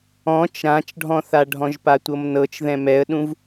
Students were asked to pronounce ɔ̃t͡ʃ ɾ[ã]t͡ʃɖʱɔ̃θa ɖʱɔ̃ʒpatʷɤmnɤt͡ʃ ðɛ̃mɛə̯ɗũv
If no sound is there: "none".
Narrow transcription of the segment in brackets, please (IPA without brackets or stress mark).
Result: ã